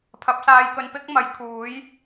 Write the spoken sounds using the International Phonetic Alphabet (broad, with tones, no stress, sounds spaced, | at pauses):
pʰ ɐ˨˥ p̚ s aː˧ j k ɵ˧ n p ɪ˥ k̚ m ɐ˨˥ j kʰ uː˨˥ j